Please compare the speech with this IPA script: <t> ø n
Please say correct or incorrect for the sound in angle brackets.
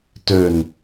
correct